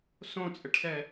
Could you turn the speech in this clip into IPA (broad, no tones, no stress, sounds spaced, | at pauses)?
s õ t͡sʼ ɘ ʈ s ɛ